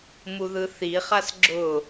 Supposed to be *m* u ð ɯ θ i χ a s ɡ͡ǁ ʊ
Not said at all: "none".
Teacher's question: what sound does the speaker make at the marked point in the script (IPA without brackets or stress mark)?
m